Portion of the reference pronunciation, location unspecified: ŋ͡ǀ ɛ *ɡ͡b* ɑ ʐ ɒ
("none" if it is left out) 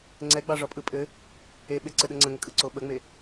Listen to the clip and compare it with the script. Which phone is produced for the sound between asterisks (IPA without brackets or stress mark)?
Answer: ɡ͡b